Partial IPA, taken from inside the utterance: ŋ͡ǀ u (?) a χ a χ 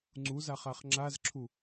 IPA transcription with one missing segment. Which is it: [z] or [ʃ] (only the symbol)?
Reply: z